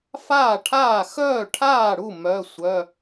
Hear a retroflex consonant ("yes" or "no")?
yes